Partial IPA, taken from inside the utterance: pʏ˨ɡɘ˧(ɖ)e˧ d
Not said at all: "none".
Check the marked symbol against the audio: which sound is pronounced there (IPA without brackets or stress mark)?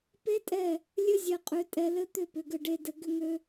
ɖ